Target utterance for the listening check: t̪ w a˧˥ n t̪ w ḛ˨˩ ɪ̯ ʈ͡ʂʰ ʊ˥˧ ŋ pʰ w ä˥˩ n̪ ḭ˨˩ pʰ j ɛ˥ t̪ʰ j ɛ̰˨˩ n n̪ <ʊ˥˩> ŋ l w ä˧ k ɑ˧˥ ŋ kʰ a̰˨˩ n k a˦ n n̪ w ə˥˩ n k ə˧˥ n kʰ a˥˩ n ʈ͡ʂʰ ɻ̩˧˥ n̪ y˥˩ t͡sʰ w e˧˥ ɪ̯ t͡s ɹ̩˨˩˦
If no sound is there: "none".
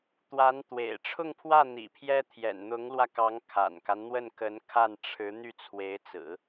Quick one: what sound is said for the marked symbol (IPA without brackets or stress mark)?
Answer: ʊ˧˥